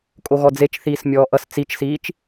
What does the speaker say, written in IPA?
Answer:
kʼ o ɣ ɔ d͡z e t͡ʃ θ iː s mʲ ɔː ʔ ʌ s t͡s i t͡ʃ s iː t͡ʃ

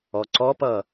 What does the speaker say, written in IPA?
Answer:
ɔ ǀ ɔ p ʌ

